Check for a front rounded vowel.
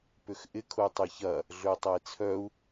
present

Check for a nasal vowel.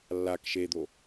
absent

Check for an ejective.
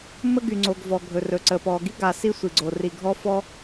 absent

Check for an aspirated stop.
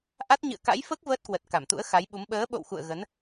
absent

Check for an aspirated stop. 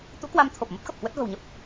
present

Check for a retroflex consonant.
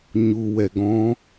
absent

